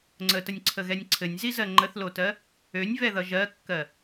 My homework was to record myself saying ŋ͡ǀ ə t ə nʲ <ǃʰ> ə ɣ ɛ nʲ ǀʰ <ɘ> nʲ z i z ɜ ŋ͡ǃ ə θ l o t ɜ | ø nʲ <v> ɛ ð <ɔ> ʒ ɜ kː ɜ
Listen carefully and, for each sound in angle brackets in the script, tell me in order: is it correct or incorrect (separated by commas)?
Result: incorrect, correct, correct, incorrect